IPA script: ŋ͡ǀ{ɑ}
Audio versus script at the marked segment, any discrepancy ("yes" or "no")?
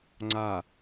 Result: yes